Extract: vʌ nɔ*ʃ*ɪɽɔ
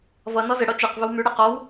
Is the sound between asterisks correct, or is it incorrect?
incorrect